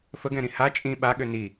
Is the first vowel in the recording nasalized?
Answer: no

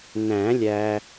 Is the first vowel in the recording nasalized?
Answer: yes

